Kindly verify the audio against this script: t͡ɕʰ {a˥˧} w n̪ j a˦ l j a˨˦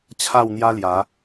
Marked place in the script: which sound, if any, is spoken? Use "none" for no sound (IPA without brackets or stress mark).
a˥˧